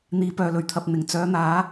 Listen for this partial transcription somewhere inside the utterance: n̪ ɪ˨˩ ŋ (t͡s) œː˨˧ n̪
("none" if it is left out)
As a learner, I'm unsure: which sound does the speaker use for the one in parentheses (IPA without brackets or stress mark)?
t͡s